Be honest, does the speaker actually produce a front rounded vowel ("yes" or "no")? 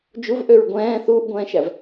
yes